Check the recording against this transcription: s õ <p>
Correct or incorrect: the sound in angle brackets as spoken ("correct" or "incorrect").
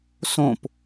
correct